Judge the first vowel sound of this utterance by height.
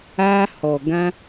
low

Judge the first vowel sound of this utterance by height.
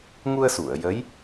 high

